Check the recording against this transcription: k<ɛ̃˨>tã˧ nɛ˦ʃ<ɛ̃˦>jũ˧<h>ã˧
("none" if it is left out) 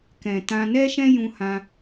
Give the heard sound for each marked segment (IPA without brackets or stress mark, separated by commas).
ɛ̃˨, ɛ̃˦, h